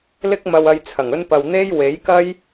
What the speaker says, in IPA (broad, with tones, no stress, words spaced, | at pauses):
lɪ˥k̚mɐ˧wɐ˧jt͡sʰɐ˨˩ŋ ɵ˧npɐ˨w n̪e˥j we˨˥jkɐ˥j